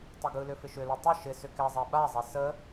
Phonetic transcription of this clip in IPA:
tˤ ɪ ɡ ɯ l ʏ f ɪ ʃ ʏ l ɯ tˤ ɐ ʃ ɪ s ʏ k ɛ zˤ ɛ ɓ a zˤ ɛ s ə

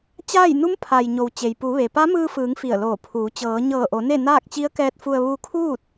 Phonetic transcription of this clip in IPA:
t͡ɕ aː˥˨ j n u˧˥ m pʰ a˩ j ɲ o˩ w t͡ɕ e˩ j p u˩˧ ʋ e˩ p a˧˥ m ɯː˧ f ɯː˩˧ ŋ f i˧˩ ə̯ l oː˧˩ pʰ uː˩˧ t͡ɕ ɤː˩˧ ɲ ɤː˧˩ ʔ o˩˧ n e˥˨ n aː˥˨ k̚ t͡ɕ i˧˥ ə̯ k ɛː˧ t̚ f u˧ ə̯ ʋ u˧ kʰ uː˥˨ t̚

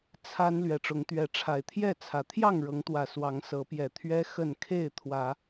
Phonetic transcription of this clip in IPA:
t͡sʰ a˦ n l ɥ ɛ˨˦ ʈ͡ʂ ʊ˨˦ ŋ t̪ ɥ ɛ˨˦ ʈ͡ʂʰ a˨˩ ɪ̯ t̪ʰ j ɛ˥˨ t͡sʰ ä˨˩ t̪ʰ j ɑ˥˨ ŋ ɻ ɤ˨˦ ŋ t̪ w ä˨˩ s w ɑ˨˦ ŋ s ɤ˨˦ p j ɛ˨˩ t̪ʰ ɥ ɛ˦ x ə˥˨ n kʰ e˥˨ ɪ̯ t̪ʰ w ä˨˦

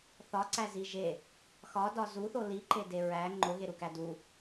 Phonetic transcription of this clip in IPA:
θ ɒ ǀ æ z i ʒ e | x ɒ d ɒ z u θ o l i ǃ e d e ɹ æ ŋ͡ǃ o ɣ e ɾ u k æ d u

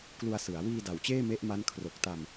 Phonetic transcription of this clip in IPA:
k l u˧ a̯ s ɯ˩˦ a̯ w iː˧ d a˨˩ w t͡ɕ eː˥˩ m e˦˥ ʔ m a˦˥ n kʰ r o˨˩ k̚ t a˧ m

